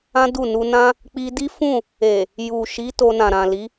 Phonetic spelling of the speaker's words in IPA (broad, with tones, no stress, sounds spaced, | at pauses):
ã˦ d u˦˨ n u˧ n ã˦ | k͡p i˧ d i˦ f ũ˦˨ | e˨ | j u˨ ʃ i˨˦ t o˧ n ã˨ ɾ ã˨ l i˨˦